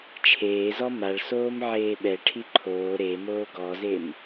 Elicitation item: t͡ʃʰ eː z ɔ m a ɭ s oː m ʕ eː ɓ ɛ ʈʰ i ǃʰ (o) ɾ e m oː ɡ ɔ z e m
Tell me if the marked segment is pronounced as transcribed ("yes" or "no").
no